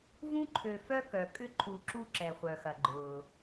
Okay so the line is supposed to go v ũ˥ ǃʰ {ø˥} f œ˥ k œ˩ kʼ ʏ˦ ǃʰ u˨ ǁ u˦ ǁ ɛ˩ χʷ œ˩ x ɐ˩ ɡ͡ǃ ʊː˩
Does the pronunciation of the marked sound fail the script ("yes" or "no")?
yes